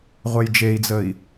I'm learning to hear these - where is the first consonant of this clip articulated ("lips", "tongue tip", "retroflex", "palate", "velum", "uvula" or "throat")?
uvula